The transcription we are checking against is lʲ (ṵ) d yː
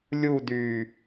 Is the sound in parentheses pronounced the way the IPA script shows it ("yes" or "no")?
no